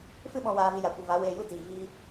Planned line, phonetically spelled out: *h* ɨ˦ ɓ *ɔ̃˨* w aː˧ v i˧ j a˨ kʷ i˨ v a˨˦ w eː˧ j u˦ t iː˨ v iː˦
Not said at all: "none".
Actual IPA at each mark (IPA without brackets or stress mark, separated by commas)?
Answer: f, ɔ̃˧